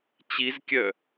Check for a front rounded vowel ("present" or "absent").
present